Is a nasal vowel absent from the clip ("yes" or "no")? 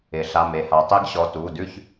yes